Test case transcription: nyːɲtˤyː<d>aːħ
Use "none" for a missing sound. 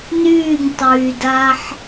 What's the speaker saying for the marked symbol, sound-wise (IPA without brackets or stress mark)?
d